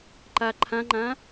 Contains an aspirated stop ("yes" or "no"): yes